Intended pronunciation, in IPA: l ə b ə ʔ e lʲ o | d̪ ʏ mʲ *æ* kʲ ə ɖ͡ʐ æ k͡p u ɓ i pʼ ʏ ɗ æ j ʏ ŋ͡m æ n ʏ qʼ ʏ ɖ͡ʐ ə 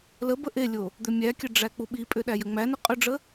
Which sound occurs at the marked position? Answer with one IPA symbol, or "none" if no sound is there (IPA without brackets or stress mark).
æ